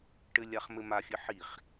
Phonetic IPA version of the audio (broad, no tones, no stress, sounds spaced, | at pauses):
ʈ ɘ lʲ a χ m ɘ m a xʲ ɘ ħ i χ